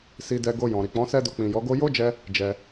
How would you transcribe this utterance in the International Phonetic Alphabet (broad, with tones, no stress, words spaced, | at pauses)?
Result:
si˧dɛ˧ ɡo˧jɔ̃˨ ɾi˨k͡pɔ̃˨˦sɛ˦do˧ k͡pĩ˨jɔ˨˦ɡo˦ jo˦d͡ʒɛ˧ | d͡ʒɛ˧